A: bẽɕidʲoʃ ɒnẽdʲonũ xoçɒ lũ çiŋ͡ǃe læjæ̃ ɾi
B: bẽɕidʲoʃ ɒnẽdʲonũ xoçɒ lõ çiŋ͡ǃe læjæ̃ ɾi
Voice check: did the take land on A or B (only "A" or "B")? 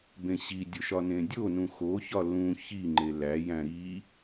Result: A